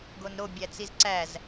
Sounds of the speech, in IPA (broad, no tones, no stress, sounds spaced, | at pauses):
ɡ o n ɾ o bʲ æ t͡s i z ǀ æ z